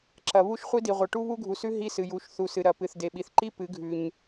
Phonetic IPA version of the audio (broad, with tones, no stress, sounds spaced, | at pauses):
ǁ ɐ˨ β u˦ ʃ χʷ i˦ d i˨ ʁʷ ɐ˨ ʈ u˦ β u˦ ɡʱ u˨ s ʉ˦ ɦ i˦ s ɨ˨ j u˨˦ ʃ θ u˨ s ɨ˨ ɾ ɐ˨ p ɨ˨ θ d e˨ ɓ i˨ θ ǃ i˦ p ɨ˨˦ ɡʱ ʉ˨ ɲ